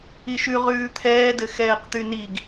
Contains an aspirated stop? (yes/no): yes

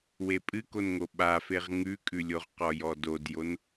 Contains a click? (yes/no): no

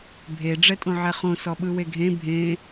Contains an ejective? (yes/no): yes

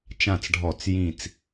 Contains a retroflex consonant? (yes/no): yes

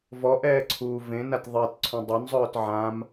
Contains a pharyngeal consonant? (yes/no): yes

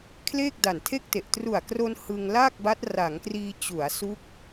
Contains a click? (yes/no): no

